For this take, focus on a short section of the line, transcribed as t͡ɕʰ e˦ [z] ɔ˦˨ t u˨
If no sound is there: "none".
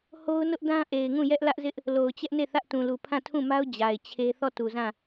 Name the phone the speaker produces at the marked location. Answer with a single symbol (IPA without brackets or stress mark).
θ